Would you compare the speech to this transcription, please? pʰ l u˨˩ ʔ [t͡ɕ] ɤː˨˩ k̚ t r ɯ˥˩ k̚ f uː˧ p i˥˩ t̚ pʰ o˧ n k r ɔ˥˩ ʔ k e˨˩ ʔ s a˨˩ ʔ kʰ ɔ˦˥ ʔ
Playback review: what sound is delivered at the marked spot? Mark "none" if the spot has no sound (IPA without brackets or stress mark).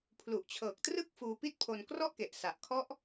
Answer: t͡ɕʰ